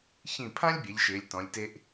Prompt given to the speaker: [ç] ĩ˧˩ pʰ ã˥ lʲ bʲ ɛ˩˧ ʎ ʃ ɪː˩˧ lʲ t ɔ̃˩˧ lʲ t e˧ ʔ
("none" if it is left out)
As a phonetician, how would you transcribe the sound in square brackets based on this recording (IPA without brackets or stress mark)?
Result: ç